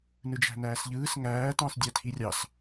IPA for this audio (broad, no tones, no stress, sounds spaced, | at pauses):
n ɯ d͡ʒ æ̤ n æː s ʎ ɯː s ŋ æː t ɑ̃ s dʲ æ tʰ i rʲ ɑ s